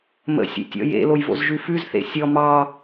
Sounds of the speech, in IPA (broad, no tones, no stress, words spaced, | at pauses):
mə̰ sʲḛtʲɔ̰jḛloj vo̰zʒʉfʉzθḛ sʲɔ mɑ